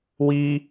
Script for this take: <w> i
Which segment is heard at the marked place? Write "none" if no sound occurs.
w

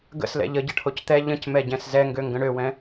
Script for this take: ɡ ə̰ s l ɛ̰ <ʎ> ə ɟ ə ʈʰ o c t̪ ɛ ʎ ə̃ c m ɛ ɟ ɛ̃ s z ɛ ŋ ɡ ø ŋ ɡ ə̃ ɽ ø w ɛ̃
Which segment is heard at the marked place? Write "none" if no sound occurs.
ʎ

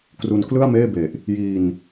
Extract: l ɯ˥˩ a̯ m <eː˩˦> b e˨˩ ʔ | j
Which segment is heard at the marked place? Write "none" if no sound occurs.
eː˥˩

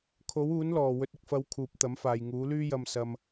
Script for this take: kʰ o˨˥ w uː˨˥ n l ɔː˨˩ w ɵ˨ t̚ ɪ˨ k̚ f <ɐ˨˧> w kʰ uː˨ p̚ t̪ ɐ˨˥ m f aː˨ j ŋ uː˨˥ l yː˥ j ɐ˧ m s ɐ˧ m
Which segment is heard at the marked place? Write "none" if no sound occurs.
ɐ˨˧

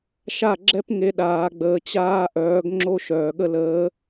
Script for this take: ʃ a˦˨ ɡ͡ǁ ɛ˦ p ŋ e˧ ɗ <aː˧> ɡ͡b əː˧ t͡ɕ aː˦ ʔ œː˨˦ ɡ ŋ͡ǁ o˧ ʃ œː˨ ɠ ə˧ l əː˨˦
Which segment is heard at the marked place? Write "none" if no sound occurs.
aː˧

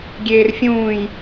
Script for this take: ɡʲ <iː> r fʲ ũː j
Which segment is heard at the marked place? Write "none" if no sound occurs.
eː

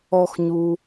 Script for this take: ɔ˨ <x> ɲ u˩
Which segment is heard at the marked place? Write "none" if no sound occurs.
x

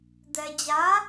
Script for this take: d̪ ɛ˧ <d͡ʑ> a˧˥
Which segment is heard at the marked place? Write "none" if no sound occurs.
d͡ʑ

